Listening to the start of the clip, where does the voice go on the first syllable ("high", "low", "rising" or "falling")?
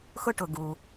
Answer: high